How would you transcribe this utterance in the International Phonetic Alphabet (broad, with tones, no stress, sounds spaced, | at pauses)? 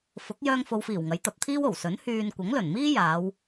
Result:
f ʊ˨˥ k̚ j œː˧ ŋ f o˨ w f iː˨˩ w ŋ ɐ˨˥ j t̪ ɐ˨˥ p̚ t̪ʰ iː˥ w o˨˩ w s ɵ˨˥ n h yː˧ n kʷ ɐ˨˥ ŋ l ɵ˨˩ n m iː˥ j aː˨˧ w